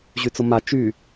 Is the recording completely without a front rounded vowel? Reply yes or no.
no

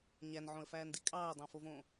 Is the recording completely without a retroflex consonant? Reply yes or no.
yes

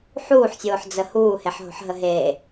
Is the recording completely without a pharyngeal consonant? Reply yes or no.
no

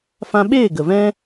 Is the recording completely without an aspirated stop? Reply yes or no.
yes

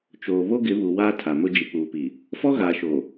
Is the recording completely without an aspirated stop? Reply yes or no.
no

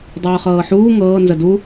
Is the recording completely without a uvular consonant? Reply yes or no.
no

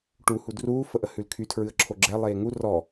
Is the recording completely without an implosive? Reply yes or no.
yes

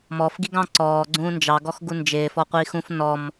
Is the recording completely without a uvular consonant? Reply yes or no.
no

